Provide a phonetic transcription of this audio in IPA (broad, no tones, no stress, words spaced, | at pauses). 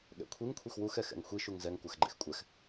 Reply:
ɠɛ̰kʷʰiŋ kʷʰixwuxɛ xɛ̰ŋxʷi ʃuŋzɛŋ kʷaxɡ͡ǃḛxkʷʼɛx